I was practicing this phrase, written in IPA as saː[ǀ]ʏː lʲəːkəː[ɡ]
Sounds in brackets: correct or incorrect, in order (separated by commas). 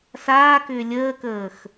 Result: incorrect, incorrect